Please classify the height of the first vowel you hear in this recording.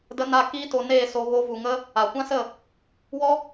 mid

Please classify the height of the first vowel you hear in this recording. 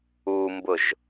high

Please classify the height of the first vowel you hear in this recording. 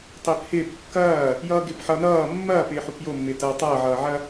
high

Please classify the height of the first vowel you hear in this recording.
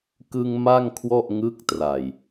high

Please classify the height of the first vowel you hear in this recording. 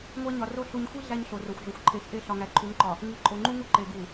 low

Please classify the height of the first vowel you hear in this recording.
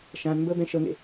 low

